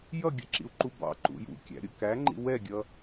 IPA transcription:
j ʌ ɡʲ ʌ ǁ ḭ u̯ ǃ u b ɑ̰ ǃ ṵ j ṵ kʲ æ̰ ɾʲ u k æ ŋ͡ǃ ḭ w ɛ ɡʲ ʌ

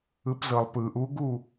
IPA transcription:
ɯ˨˥ p z ɤ˨ lˠ p ɯ˨˩˦ ʔ u˨˥ ɡ u˥˨

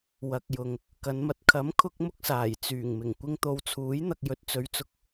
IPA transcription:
w ɐ˨ k̚ j ʊ˨ ŋ | k ɐ˨˧ n m ɐ˧ t̚ kʰ ɐ˨˥ m kʰ ʊ˧ k̚ m ʊ˧ k̚ s aː˨˩ j t͡s yː˨˩ ŋ m ɪ˨˩ ŋ kʷ ɪ˧ ŋ t̪ o˨˧ w t͡sʰ uː˨˥ j n̪ ɐ˨ k̚ j ɵ˨ t̚ t͡s ɵ˨˧ ɥ t͡s ʊ˧ k̚

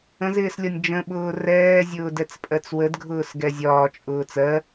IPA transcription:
ə̃ z ɪː s lʲ ɒ nʲ d͡ʒ ə̃ ɓ ʊː r ɛː zʲ ʊː d ɛ t͡s pʼ ɜ t͡s w ə d ɡʱ ʊː s ɡ ɛ zʲ ɒː t͡ʃʼ ʊː t͡s ɜ

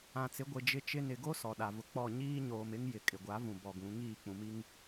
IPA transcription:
ã˨ t͡s ɪ˨˦ ɡʷ ɪ˨ d͡ʒ ɪ˦ t͡ʃ ɪ˦ n ɪ˨ ɡ o˦ s ɔ˨ ɗ a˨ v ʊ˨ k͡p ɔ˦˨ ɲ iː˦ ɲ oː˨ m ɪ˦ ŋ j ɪ˨ kʼ ɪ˨ ɡʷ a˨˦ v ũ˨ b ɔ˨ ɡ ũ˨˦ ŋ iː˦˨ k͡p ũ˨ m i˦ ŋ

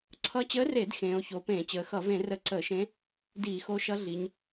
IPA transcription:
ǀʰ ʌ˧˥ t͡ɕ əː˧˥ r e˧˩˧ d x ẽː˩˧ o̯ ç o˩˧ p ẽː˧˩˧ t͡ɕ əː˩˧ x ʌ˧˩˧ v ẽ˧˩˧ r ə˧˩˧ ǀ əː˧˩˧ ʃ ẽ˧˥ | d iː˧˩˧ x o˧˥ ʃ ʌ˧˥ ɮ i˩˧ ɲ

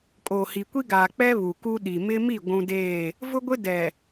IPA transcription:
kʼ oː˨ h i˨ kʷ i˦ ɡ aː˨ k͡p ɛ˦ β u˨ k u˦ ɗ i˨ m ɪ˦ m i˦˨ ɡʷ ũ˦ d eː˦˨ | v ʊ˦ ɡʷ ɪ˦ d ɛ˨

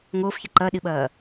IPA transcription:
ŋ ʊː f ç ə ǃ ɜ ɗ i ɓ ɜː

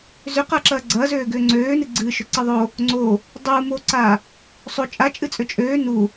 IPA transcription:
z ʏ q a ǁ ɐː ɡ͡ǀ ɐː z øː ɡ ʏː ŋ͡ǀ øː n ɨ ɡ͡ǀ ɨː ʃ ʏ ǀ ɨ ðˤ o | ŋ͡ǀ o | dˤ uː m o ǀ aː | sˤ o t͡ʃʼ a t͡ʃʼ ɨ t͡sʼ ø t͡ʃʼ øː n u

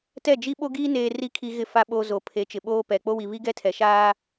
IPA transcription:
t ɛ˦˨ d͡ʒ i˦ ɓ o˦ ɡ iː˦ n eː˨ r i˨˦ kʰ i˨ ɣ ɪ˨ f a˨ ɓ oː˨ z o˨ pʰ e˨˦ t͡ʃ ɪ˨ ɓ oː˦ p ɛ˨ k͡p o˦ w i˨ β i˦ ɡ ɛ˦ tʰ ɛ˨ ʃ aː˦

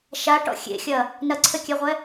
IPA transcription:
ʃ a ʈ ɔ̰ xʲ ḛ xʲ ɐ | n ɐ ǀʰ ɘ kʲ ɛ ʁʷ ɛ

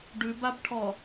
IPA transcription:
ɖ ʉ b a b ʈʰ ɔ

